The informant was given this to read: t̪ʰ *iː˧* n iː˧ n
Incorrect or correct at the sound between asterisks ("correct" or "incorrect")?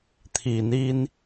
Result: incorrect